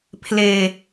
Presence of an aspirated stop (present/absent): present